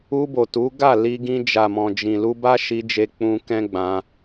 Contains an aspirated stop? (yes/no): no